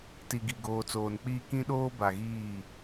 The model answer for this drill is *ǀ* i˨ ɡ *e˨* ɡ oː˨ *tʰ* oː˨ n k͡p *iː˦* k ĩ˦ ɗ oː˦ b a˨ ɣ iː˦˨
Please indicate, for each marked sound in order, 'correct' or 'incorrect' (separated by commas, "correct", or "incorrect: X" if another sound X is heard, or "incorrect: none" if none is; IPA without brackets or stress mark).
incorrect: t, incorrect: i˨, incorrect: t͡s, correct